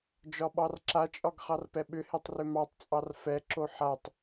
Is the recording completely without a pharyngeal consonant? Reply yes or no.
no